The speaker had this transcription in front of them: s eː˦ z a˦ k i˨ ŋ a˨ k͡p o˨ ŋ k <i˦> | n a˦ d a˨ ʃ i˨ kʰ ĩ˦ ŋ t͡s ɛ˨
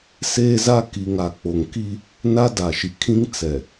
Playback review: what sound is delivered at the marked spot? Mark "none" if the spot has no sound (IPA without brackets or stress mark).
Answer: i˦